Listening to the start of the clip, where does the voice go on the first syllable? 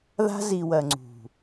high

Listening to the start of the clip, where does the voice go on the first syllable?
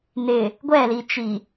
low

